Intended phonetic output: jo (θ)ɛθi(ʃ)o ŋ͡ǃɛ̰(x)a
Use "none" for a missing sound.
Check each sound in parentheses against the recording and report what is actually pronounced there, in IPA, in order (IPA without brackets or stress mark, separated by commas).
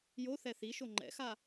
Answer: θ, ʃ, x